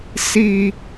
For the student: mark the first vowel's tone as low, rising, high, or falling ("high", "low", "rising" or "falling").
high